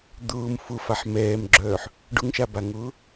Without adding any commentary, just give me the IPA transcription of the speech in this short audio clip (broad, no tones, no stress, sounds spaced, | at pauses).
d̪ ʊː m f ʊ f a ħ m ɛː m ɡ͡ǁ œː ħ | ɖ ʊ ŋ ʃ a b a ŋ ʊː